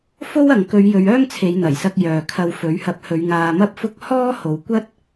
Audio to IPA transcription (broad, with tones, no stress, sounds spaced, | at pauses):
f o˥ w ɐ˨ ŋ k ɵ˨˧ ɥ j ɵ˨˧ ɥ œː˥ ŋ t͡sʰ e˨˧ j n̪ ɐ˨˩ j s ɐ˧ k̚ j œː˨ kʰ ɐ˧ w f ɵ˨˥ ɥ h ɐ˧ p̚ h ɵ˨˧ ɥ ŋ aː˧ m ɐ˥ p̚ f ʊ˥ k̚ h ɔː˥ h o˨˧ w kʷ ɐ˥ t̚